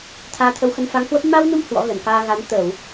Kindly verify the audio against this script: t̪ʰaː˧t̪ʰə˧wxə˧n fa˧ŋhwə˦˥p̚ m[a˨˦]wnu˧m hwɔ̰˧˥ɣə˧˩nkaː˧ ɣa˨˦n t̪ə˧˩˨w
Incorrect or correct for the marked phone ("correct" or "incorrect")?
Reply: incorrect